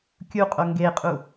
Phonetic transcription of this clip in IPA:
kʲuqʼo ŋɡeqʼu

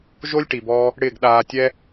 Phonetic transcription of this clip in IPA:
ʒo˦lʲʈi˨bɔː˧ | ɽɪː˦˨ɡɗaː˧tʲɛ˦

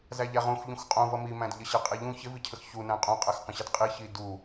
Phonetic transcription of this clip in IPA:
zæʎæʁũx ʎũxqʼũvʌ mimæ̃d ʎəɕɛqʼiʎũ çɪvicʰəx çunæ̃ qʼũqʼæxqə̃ɕɛd qʼiçi du

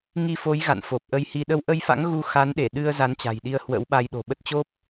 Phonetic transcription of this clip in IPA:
ŋi˧fo˨˦j ɣa̰˧˨nfo˨˩p̚ʔə˧jhi˧ ɗə˧wʔə˧jfa̰˧˥ŋ ɣu˧xa˨˦nɗe˧˩ ɗɨ˧ə̯ za˨˦nt͡ɕa̤˨˩jɗi˧ə̯ hwə̰˧˥wɓa˧j ɗo̤˨˩ɓə˦˥t̚ t͡ɕo˦˥p̚

